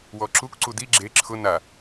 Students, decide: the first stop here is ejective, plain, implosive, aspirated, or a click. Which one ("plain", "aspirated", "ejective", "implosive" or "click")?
click